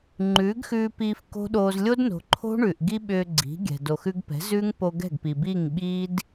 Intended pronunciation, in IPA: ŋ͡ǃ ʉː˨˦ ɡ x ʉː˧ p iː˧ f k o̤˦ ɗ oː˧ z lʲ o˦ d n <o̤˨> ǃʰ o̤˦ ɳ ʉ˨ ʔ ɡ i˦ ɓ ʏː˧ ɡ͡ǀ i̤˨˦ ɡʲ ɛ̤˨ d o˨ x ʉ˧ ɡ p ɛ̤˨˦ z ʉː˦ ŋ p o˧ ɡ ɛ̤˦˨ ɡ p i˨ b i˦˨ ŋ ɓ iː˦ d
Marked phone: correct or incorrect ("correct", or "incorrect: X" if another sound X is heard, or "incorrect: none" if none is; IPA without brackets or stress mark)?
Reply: correct